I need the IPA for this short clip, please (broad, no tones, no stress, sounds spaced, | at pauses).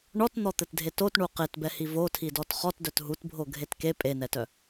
ɳ ɔ t n̪ ɔ t̪ ɘ t dʱ e t o t ɳ u q e t b ɛ h i v o tʰ i d ɔ t χ ɔ t d œ t ɦ u t bʱ o ɡʱ e t k e pʼ e n ɛ t œ